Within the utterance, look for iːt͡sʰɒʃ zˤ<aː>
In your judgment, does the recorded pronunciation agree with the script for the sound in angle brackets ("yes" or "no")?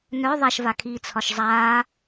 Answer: yes